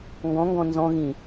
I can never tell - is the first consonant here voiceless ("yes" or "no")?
no